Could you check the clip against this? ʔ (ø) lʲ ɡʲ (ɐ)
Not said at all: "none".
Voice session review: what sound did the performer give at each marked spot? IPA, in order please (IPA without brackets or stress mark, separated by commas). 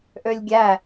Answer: ø, æ